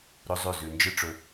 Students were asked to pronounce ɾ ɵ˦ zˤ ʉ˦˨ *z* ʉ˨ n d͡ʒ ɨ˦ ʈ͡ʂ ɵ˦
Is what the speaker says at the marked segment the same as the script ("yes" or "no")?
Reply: yes